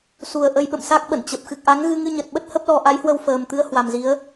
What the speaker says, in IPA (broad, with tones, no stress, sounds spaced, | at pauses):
s u˨˩ ə̯ ʔ ə˧ j ɓ ə̰˧˨ m s a˦˥ k̚ ɓ ə̰˧˨ n t͡ɕ ə˨˩ p̚ x ɨ˨˩ k̚ ʔ a˨˦ ŋ ɣ ɨ˧ ŋ ɨ˧ ɲ ə˨˩ t̚ ɓ ə˦˥ t̚ h ə˦˥ p̚ l ɔ˧ ʔ a˨˦ j h w ə˧ w f əː˨˩ m t̪ ɨ˨˦ ə̯ h w a˨˩ m z i˨˦ ə̯